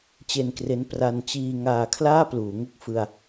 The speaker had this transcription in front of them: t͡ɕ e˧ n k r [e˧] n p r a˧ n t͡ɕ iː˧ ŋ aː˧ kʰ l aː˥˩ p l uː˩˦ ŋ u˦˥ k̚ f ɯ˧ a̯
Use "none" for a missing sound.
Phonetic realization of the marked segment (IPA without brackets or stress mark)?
e˦˥